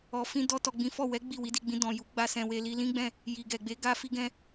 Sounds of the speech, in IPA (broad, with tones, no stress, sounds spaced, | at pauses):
ɔ˨ f ĩ˧ d ɔ˧ t ɔ˨ ɡ͡b ĩ˨˦ f ɔ˦˨ w ɛ˨˦ ɡ͡b i˦˨ w i˨˦ d i˧ ɡ͡b ĩ˧ d ɔ̃˨ j u˨˦ ɡ͡b a˧ s ɛ̃˨ w e˧ l i˧ l ĩ˦ ɡ͡b ɛ̃˦˨ | j i˨ ɡ ɛ˨ ɡ͡b e˨˦ ɡ a˧ f i˧ ɡ ɛ̃˧